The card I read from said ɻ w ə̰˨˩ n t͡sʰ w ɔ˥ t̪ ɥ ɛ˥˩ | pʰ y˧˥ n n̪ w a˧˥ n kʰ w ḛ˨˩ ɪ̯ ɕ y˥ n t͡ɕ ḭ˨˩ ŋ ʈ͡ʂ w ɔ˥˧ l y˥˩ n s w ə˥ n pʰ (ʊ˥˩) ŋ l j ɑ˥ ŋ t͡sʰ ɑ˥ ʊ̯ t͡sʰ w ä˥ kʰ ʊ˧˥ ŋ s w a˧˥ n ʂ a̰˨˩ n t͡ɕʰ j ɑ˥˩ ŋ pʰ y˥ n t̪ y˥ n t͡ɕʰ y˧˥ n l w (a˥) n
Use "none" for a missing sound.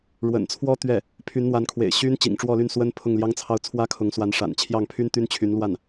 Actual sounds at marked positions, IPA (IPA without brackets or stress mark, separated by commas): ʊ˥˩, a˥˩